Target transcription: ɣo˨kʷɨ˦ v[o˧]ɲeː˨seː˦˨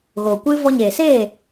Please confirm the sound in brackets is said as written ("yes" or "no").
no